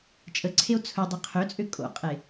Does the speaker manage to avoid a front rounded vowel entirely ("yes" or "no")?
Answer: no